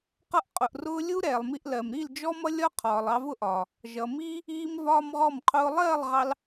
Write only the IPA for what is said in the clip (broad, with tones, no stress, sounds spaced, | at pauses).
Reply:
q ʌ˧ ʔ qʼ ʊ˨ ʔ r ʊː˧ lʲ u˦ ɾ ɛː˨ lˠ m i˧ ʔ l ɜ˨ m ɾ i˦˨ l d͡ʒ ɔ˦ m ʌ˦ lʲ ɒ˦ qʰ ɒː˨ lˠ ɑ˧ v ʊ˦ ʔ ɒː˨ | ʒ ʌ˨ m iː˦ | iː˦ m v ɒː˦ m ʁ ɔ˦˨ m qʰ ʊː˦ lˠ ɜː˦˨ lˠ ʁ ɑ˧ l